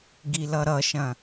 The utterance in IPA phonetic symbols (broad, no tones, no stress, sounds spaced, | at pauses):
ɡ i l ʌ ɾ ʌ ʃ ɐ̃